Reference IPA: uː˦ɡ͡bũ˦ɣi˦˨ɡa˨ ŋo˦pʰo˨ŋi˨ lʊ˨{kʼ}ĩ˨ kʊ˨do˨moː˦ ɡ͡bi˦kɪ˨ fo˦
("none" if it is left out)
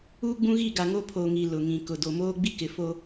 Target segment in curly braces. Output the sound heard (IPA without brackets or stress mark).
ŋ